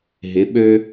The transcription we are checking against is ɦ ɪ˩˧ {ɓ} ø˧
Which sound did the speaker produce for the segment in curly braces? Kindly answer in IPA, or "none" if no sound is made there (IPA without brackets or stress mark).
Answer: ɓ